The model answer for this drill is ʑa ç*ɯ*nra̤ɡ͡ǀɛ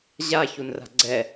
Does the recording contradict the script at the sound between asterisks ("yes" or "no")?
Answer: yes